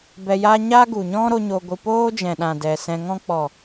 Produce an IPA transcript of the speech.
b ɛ˧ j a˦ ɲ a˦ ɡ u˨ ɲ ɔ̃˦ ɾ o˦ ɲ o˧ ɡʷ ɨ˧ p oː˦ d͡ʒ ɛ̃˨ ɗ ã˨ d ɛ˨ s ɛ̃˧ ŋ ɔ̃˧ k͡p ɔ˨

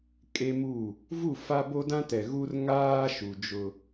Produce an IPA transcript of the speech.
kʼ e˦ m u˦˨ | v u˦˨ f a˦ b o˦ d ã˦ t ɛ˨ ɣ u˦ r ŋ aː˦ ʃ u˨ d͡ʒ ʊ˨

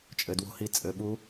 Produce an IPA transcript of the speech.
t͡ʃʼ ɘ˧ d w o̤˦˥ h i˦˥ t͡sʼ ɘ˧ ɓ u˦˥

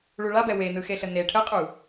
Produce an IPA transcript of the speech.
ɭ u ɭ a b ɛ w e n ɯ x e ɬ ə n e ʈʰ ə qʼ u

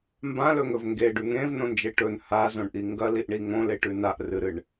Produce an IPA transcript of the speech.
m b ã l ɵ ŋ ɵ v ŋ ɡ e ɖ ʉ ŋ ẽ v n õ n d͡ʒ e ʈ ɵ n h a z õ ɳ ʔ i ŋ ɡ ɐ l i ʔ ɳ i ŋ õ l e ʈ ʉ n a ʔ r ɨ ɾ ɨ ɳ

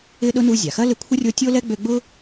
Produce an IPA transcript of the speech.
ɪ˥ ɗ ʊ˥ n u˦ zʲ a˩ x ɐ˥ l ɪ˦ kʷʰ ɪ˥ rʲ o˦ tʲ o˥ l ɛ˥ ɡ͡b ø˦ ɡ͡b ʊ˥

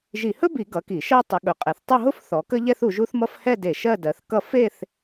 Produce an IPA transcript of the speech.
ʒ i˧˩˧ h ɵ˥ b i˧˩˧ ɡ ʌ˨˦ k i˧˩˧ ʃ ɜ˥˧ tˤ ə˨˦ ɠ ɵ˨˦ qʼ ɛ˨˦ θ tˤ ʊ˥˧ ɦ ʊ˥˧ f θ ɔ˨˦ k ə˥ ʎ ɛ˥ θ u˨˦ ʒ u˥ θ m ʌ˥ f h ɛ˥˧ d e˧˩˧ ʃ ɜ˥˧ d ɜ˨˦ θ k ʌ˥˧ f e˥˧ θ

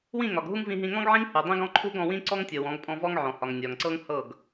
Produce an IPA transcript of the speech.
w ĩ˦˨ ŋ ɒ˨ ɡ ɦ u˦ ŋ v ĩ˧ ɦ ĩ˧ ŋ ɔ̃˦ ɡ ʕ ĩ˦ ŋ h u˨ dˤ ĩ˦ ɡ ɔ̃˦ ǃʰ u˦ ɡ ɔ̃˧ w ĩ˦ ǀ ɔ˦ ŋ tʲ ɤ˨ w ɔ̃˨˦ ɡ pʼ ɔ̃˧ v ɔ˦ ŋ ʕ ɔ̃˨ h ɒ˨ ŋ nʲ ɒ˨ ŋ ǀ ɤ˦ ŋ h ɤ˦˨ ɡ

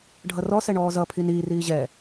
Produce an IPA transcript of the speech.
ɖʱ ʌ r ɔ s ɛ ɳ ɔː z ʌ pʰ i n iː r iː ʑ ɛ

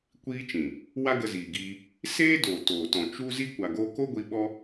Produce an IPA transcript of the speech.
kʷ iː˦ t͡ʃ ĩ˨ | w a˦ ɡ ə˧ z iː˨ ɡ iː˧ | s eː˦ d oː˨ t oː˨ t ɔ̃˨ t͡ʃ u˦ z i˦ kʷ a˨ ɡ oː˧ k o˦ ɡʷ i˧ ɓ ɔ˦

